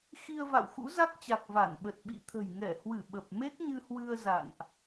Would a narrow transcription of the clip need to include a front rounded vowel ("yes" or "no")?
no